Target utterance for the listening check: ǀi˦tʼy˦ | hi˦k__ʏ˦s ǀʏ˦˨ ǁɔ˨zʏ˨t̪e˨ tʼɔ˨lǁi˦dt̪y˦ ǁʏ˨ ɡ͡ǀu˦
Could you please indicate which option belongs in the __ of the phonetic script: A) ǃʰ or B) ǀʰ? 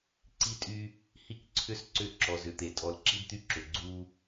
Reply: B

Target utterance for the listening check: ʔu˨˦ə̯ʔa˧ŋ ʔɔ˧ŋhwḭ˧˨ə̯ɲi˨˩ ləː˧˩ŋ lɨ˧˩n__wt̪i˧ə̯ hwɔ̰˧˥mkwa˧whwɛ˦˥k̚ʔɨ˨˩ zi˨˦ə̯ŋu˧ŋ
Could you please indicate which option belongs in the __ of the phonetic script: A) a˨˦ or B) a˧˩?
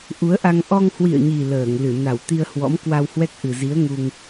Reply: B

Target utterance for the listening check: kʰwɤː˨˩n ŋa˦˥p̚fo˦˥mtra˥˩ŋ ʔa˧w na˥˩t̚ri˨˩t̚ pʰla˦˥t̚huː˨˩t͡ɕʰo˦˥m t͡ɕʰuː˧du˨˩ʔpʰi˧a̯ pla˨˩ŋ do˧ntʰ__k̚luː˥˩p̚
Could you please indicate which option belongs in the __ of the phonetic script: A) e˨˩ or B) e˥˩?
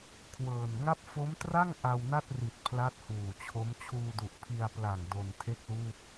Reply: B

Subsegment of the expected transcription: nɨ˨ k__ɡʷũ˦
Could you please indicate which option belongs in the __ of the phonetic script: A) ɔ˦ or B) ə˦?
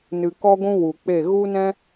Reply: A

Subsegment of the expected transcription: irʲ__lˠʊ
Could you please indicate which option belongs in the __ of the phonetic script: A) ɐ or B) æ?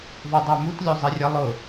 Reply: A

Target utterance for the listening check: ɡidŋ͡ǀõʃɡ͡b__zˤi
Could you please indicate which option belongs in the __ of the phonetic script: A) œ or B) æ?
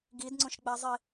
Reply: B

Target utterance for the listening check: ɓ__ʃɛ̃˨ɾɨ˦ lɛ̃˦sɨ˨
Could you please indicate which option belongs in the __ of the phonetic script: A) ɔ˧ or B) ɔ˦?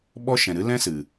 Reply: B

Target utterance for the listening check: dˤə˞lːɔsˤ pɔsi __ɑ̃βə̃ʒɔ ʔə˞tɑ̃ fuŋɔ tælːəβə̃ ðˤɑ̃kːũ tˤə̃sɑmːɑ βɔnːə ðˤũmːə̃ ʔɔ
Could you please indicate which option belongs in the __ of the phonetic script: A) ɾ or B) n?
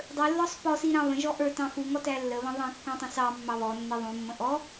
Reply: A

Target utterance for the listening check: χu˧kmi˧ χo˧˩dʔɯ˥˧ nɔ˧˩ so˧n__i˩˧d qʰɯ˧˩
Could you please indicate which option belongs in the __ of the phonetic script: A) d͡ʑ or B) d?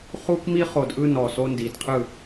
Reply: B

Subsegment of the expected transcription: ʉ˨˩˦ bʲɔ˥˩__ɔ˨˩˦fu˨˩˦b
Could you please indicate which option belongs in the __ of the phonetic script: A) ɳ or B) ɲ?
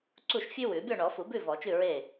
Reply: A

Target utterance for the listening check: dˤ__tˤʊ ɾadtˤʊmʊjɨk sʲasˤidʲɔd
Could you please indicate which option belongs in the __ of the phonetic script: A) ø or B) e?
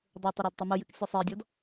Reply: B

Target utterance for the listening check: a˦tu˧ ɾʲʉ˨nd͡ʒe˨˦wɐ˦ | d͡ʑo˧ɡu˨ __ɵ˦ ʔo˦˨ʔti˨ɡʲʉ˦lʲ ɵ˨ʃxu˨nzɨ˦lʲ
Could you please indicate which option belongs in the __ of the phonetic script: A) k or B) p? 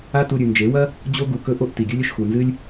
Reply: A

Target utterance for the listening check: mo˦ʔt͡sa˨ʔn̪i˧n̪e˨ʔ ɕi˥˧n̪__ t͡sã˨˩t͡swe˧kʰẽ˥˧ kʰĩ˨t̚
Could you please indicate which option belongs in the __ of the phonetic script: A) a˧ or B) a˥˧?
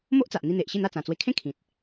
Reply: B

